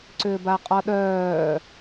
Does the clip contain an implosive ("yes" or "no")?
yes